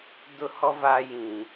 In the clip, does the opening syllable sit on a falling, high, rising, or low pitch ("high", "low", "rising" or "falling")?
high